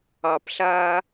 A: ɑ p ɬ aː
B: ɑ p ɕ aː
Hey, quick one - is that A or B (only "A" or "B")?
A